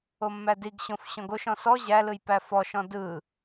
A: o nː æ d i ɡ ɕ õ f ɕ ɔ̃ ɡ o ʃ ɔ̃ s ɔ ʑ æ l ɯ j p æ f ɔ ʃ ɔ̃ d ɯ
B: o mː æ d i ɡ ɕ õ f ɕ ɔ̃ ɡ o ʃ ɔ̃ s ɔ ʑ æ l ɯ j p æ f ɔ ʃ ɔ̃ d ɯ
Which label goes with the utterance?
B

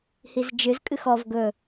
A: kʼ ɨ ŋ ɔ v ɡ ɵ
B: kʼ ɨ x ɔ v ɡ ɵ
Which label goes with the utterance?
B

